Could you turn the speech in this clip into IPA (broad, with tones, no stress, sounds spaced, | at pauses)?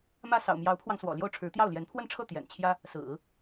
m ä˥˩ s ɑ̰˨˩ ʊ̯ m j ɑ˧˥ ʊ̯ pʰ w ɑ˧ ŋ s w ɔ̰˨˩ l j o˥˩ ʊ̯ ʈ͡ʂʰ ɻ̩˧˥ t̪ j ɑ˥˩ ʊ̯ l j ɛ˧˥ n pʰ w ə˥˧ n ʈ͡ʂʰ ɤ˥˩ t̪ j ɛ̰˨˩ n t͡ɕʰ j ä˥ | s ɹ̩˨˩˦